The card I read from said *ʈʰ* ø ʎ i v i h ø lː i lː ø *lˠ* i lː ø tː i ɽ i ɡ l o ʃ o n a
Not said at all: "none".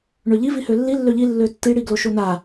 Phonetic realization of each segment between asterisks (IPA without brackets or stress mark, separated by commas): ɳ, ʎ